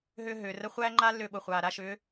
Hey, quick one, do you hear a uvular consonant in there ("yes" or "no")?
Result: yes